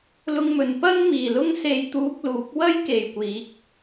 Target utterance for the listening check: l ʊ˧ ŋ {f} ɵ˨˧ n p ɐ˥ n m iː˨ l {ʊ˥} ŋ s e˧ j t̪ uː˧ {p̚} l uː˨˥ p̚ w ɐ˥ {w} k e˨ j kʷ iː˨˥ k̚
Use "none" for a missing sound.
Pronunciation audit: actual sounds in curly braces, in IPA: m, ʊ˥, k̚, j

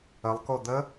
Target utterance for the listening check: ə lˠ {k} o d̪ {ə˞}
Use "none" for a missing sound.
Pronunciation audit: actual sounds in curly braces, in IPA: k, ə

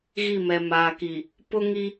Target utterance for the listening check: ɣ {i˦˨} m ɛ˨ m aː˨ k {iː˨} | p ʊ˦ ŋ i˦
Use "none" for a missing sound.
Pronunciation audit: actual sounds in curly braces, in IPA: i˦˨, i˨

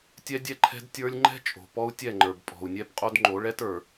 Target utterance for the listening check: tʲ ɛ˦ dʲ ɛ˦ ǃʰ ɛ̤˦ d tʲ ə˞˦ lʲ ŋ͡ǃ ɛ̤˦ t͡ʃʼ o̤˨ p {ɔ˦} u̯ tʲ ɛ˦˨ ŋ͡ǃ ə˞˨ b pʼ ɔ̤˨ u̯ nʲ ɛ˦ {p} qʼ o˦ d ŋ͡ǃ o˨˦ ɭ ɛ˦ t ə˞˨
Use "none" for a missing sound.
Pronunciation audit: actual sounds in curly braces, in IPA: ɔ˦, p

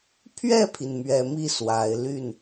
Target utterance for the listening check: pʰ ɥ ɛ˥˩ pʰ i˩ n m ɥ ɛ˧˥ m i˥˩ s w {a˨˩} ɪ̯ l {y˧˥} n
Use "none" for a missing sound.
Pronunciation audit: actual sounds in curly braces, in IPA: a˨˩, y˥˩

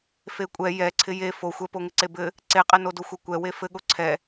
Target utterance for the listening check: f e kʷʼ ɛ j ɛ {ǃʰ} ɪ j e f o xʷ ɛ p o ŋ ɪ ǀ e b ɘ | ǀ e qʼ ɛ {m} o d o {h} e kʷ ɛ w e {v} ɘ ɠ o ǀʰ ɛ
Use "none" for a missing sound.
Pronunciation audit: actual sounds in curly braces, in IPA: ǀʰ, n, xʷ, f

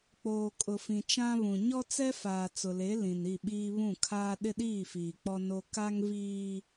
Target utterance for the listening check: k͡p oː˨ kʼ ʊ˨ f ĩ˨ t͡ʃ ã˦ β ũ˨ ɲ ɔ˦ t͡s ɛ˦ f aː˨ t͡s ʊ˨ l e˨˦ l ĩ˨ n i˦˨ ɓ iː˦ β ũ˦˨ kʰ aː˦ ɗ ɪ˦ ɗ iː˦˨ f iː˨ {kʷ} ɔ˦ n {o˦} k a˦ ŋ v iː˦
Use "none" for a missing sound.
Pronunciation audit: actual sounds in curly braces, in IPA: k͡p, o˦

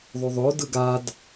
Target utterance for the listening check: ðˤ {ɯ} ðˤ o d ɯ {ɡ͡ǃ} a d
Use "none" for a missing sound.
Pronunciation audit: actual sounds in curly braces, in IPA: u, ɡ

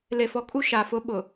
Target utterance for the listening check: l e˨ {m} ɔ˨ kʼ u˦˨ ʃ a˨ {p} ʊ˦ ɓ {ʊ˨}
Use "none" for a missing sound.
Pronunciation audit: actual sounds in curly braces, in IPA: f, f, ʊ˨

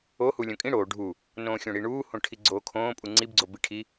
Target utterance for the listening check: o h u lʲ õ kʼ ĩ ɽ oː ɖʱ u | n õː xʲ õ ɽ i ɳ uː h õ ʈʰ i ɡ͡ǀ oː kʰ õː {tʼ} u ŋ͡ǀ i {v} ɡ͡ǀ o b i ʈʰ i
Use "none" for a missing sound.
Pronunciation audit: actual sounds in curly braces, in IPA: pʼ, b

